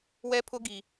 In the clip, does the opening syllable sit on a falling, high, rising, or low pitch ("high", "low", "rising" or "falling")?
high